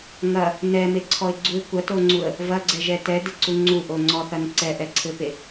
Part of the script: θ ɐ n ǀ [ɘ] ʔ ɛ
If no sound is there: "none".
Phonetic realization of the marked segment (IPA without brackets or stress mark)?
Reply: ɛ